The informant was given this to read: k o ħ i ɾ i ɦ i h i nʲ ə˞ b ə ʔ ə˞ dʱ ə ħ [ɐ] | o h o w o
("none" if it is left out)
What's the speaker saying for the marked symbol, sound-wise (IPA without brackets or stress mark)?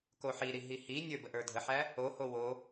æ